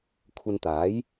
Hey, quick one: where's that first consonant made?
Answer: velum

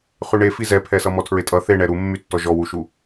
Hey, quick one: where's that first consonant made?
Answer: uvula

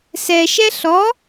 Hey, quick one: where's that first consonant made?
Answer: tongue tip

